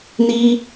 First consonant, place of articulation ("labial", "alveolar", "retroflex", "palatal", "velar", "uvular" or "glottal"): alveolar